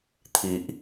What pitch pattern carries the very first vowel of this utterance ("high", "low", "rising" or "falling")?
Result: low